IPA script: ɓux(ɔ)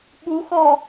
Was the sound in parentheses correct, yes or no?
yes